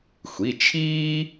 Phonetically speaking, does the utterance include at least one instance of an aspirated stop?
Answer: yes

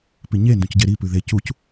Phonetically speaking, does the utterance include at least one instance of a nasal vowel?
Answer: yes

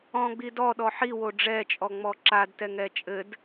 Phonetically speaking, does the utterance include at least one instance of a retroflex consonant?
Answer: yes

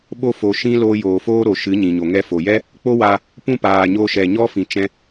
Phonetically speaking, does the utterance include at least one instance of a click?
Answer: no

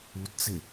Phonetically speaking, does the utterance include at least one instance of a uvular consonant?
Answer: no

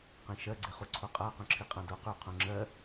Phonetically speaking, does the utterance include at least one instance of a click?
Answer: yes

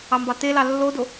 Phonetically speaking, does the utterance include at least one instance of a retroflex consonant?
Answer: no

